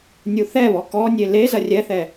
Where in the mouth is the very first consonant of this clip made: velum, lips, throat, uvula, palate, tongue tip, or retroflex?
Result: tongue tip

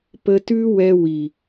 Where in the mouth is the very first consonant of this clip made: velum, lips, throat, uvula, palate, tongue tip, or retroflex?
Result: lips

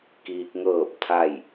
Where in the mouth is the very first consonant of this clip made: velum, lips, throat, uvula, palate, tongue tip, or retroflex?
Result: velum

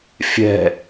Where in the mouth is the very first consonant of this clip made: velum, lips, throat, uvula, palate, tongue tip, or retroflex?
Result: lips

